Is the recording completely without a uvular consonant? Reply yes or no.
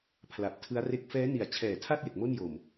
yes